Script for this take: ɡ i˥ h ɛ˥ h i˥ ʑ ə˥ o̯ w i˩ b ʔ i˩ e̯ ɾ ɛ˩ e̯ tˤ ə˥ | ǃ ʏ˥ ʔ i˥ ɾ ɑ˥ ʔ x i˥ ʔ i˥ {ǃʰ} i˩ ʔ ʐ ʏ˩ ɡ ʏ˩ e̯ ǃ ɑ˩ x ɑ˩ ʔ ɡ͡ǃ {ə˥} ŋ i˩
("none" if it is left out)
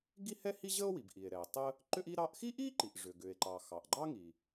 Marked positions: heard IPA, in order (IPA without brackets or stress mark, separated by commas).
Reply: ǃ, ɑ˥